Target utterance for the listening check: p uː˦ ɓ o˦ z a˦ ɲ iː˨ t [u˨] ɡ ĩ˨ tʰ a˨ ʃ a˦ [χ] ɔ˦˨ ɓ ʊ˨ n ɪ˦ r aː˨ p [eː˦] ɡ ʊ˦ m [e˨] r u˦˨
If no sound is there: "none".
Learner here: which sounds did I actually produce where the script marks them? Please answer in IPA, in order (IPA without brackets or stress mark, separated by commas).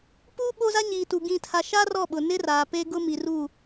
u˨, r, eː˦, i˨